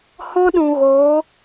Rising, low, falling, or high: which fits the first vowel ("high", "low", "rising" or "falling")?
high